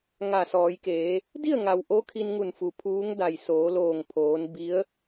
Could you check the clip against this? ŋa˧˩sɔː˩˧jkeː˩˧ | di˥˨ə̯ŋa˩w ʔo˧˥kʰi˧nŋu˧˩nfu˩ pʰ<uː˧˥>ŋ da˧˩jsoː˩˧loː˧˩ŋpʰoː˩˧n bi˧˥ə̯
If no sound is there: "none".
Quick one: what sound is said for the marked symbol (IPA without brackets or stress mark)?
uː˧˥